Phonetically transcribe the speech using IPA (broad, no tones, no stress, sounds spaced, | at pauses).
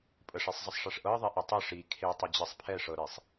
pʼ ə ʂ i sˤ zˤ ə sˤ ʂ ɛ ʂ ʔ ɤ ɐ̯ ðˤ ɛ ʔ e tˤ ɤ ʂ i kʰ e tˤ ʌ d͡ʑ i sˤ pʰ ɛ ʂ ɤ ɾ e sˤ